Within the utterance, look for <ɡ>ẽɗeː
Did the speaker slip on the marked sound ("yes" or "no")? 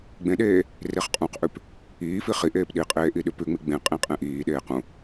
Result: yes